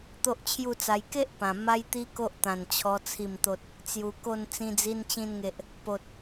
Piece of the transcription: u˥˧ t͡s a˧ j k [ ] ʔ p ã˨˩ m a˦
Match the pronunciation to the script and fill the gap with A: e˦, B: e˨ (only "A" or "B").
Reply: A